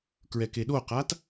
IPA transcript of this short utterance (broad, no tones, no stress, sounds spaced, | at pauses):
k ɹ ɛ k e ɗ o q a t